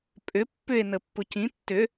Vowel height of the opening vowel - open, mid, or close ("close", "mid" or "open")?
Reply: close